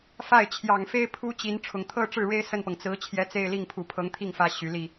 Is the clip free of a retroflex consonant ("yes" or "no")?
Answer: no